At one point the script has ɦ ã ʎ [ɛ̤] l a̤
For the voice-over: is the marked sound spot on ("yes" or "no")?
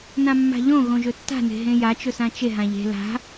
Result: no